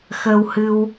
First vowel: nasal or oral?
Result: oral